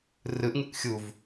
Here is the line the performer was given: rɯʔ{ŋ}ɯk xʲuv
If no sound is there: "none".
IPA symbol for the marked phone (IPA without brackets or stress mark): ŋ